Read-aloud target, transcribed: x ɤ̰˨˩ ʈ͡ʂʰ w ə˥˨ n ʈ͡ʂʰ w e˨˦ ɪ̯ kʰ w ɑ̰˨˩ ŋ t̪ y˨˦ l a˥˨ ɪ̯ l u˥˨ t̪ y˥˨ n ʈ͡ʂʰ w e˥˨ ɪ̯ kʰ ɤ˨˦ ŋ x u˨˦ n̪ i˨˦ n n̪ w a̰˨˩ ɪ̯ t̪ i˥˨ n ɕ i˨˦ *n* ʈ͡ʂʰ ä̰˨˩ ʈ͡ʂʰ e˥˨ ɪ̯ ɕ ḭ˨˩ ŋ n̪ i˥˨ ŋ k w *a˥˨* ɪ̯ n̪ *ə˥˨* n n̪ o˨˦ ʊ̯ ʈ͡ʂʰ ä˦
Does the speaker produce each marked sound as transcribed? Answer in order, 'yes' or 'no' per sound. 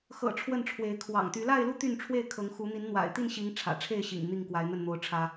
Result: no, no, yes

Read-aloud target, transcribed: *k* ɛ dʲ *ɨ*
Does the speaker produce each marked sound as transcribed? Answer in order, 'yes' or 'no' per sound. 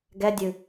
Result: no, yes

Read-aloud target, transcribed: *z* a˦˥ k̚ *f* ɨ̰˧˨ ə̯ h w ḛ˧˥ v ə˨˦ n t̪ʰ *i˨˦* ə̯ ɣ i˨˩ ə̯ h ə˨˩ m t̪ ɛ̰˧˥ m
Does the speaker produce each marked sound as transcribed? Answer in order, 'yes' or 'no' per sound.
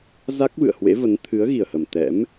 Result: yes, no, no

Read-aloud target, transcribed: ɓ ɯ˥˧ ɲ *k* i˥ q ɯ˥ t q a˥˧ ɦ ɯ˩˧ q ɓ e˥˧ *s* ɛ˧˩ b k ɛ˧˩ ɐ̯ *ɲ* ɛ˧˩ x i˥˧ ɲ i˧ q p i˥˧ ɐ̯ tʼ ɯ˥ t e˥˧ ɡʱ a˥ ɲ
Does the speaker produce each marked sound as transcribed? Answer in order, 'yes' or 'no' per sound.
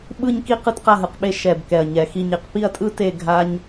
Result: yes, no, yes

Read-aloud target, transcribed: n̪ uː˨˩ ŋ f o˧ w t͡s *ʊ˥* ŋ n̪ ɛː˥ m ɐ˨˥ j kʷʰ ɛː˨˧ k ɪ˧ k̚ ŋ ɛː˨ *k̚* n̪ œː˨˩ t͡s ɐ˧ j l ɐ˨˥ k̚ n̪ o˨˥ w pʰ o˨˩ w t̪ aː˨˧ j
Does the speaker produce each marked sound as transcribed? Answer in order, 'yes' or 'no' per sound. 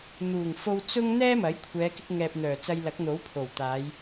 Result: yes, no

